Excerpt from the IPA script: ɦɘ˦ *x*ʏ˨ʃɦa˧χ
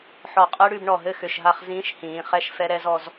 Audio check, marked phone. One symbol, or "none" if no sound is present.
x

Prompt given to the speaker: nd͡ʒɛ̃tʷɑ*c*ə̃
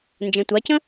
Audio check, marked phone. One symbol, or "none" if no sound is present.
c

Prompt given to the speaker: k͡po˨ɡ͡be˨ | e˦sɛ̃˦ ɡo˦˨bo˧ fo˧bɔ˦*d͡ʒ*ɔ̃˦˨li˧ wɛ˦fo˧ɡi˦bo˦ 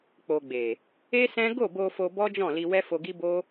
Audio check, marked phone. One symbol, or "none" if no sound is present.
d͡ʒ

